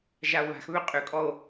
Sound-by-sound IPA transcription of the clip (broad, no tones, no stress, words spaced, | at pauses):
ʒao̯βa̤xβø qʼʏkʼɔo̯